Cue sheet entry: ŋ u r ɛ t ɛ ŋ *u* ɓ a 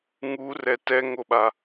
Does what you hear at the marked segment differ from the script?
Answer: yes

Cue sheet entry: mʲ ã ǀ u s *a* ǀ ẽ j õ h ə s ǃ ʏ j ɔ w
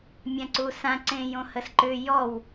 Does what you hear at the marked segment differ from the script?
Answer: yes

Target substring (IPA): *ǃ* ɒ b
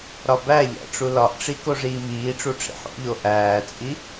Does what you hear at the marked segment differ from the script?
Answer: yes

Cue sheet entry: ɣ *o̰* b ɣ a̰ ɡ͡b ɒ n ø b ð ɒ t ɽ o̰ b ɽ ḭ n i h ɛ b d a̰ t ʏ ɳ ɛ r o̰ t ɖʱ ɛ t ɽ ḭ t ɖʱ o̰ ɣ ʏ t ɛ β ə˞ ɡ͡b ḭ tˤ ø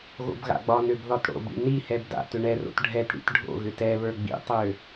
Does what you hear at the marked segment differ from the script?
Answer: no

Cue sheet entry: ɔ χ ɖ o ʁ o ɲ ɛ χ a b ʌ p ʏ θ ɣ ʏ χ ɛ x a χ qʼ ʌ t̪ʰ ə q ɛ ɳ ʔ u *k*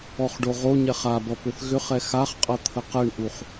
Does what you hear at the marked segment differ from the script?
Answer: yes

